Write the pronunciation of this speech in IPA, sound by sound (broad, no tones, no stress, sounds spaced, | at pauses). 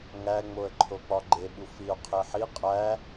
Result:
ŋ æ ŋ͡m o ə̯ ǃʰ o k͡p ɒ ɡ͡ǃ e ɓ u f i ʊ̯ qʰ e ħ i qʼ æ